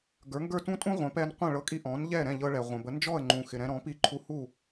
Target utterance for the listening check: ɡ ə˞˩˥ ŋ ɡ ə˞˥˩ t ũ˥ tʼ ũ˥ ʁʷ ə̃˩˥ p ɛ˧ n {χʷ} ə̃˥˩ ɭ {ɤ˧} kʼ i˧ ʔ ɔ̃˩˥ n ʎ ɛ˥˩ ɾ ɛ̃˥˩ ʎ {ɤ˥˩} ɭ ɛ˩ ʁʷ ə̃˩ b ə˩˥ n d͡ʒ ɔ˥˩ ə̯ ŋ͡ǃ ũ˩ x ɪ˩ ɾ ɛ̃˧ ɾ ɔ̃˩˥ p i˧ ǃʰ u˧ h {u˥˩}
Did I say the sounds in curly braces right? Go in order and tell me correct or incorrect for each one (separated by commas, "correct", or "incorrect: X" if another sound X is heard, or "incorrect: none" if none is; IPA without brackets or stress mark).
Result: incorrect: qʷ, correct, incorrect: ɤ˧, correct